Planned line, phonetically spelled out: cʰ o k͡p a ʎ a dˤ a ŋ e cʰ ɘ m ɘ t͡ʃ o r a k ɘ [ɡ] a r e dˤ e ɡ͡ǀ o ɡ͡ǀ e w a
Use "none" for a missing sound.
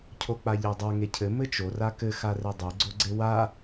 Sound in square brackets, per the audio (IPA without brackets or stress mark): x